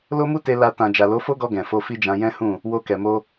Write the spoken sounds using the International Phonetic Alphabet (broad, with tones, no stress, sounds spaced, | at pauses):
l o˦ m u˦ t e˧ l a˧ t ã˨ d͡ʒ a˨ l o˨˦ f o˦ ɡ ɔ˧ ɡ ɛ̃˨ f o˧ f i˦ d͡ʒ ã˧ j ɛ̃˦ h ũ˦˨ | w o˧ k ɛ˨ m o˧